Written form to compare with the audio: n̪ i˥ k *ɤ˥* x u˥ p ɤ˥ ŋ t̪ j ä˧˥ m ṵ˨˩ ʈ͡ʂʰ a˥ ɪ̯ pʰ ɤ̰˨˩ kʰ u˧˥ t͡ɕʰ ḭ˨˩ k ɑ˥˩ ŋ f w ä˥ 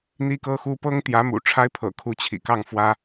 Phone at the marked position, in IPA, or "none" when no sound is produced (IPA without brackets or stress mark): ɤ˥